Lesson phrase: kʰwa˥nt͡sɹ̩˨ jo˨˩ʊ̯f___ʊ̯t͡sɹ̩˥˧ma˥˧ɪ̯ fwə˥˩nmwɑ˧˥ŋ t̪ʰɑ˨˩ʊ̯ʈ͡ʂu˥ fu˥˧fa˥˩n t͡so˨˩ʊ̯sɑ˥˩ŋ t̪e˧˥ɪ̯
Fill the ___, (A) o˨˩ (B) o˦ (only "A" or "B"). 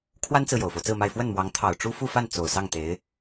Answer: B